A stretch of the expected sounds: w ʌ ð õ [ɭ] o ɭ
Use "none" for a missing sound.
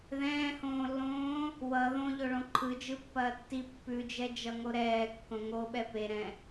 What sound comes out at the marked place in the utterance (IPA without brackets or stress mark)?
ʎ